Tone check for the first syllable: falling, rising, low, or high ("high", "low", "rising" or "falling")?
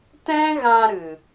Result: high